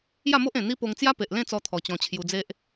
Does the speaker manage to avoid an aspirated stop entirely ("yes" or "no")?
no